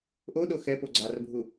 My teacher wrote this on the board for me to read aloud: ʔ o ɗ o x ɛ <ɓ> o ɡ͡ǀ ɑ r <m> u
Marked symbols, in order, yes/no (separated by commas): no, no